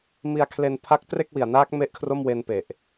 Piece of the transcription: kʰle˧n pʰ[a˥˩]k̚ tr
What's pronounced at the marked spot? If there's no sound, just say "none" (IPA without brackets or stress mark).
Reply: a˥˩